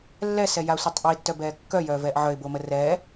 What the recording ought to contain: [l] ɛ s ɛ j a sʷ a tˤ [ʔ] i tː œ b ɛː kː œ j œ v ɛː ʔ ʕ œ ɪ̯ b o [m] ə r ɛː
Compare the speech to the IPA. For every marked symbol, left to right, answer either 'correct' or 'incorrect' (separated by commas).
incorrect, correct, correct